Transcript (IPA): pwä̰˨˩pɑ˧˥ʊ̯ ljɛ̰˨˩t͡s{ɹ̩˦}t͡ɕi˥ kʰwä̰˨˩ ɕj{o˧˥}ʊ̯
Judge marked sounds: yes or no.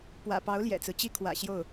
yes, no

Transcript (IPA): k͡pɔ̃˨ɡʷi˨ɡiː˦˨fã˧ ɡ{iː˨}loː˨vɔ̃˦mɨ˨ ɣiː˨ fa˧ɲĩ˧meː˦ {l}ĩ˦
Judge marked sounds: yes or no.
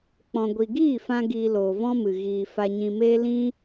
no, yes

